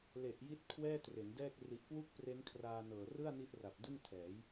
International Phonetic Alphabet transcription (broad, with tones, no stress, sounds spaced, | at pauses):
l e˨˩ ʔ j i˦˥ t̚ kʰ w ɛː˥˩ t r e˩˦ n d ɛː˥˩ k̚ r i˨˩ ʔ k w u˥˩ k̚ p r e˦˥ n kʰ r aː˧ n ɤː˨˩ r ɯ˥˩ a̯ n i˦˥ ʔ r a˨˩ p̚ d ɯ˥˩ ŋ tʰ ɛː˩˦ j